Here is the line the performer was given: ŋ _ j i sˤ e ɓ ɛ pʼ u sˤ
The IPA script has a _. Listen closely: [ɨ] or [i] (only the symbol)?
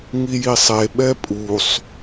i